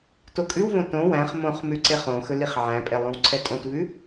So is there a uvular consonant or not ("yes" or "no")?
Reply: yes